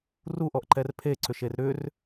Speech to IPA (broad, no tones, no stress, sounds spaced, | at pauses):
r u ʔ ɔ ʔ ǃ ɛ r pʰ e ǀ ʏ ʃ e r ɾ ʏ r